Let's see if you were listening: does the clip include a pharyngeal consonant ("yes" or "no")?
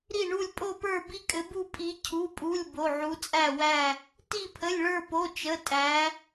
yes